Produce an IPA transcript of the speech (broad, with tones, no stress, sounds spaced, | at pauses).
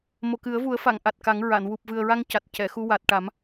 m o˨˩ k ɨ˨˩˦ ə̯ v u˨˩˦ ə̯ f a˨˩˨ ŋ ʔ a˨˩ t̚ k a˨˩˦ ŋ ɹ a˨˩˨ n w u˨˩ p̚ v ɨ˨˩ ə̯ ɹ a˧ ŋ c a˨˩ t̚ c ɛ˨˩˨ x u˧ w a˨˩ t̚ ʈ a˨˩˦ m